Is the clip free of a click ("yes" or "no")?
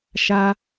yes